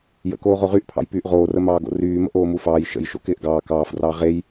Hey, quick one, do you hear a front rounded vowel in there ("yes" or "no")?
yes